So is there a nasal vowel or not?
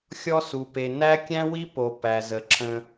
yes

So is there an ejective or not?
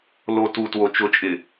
yes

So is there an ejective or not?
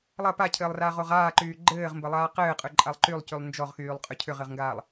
yes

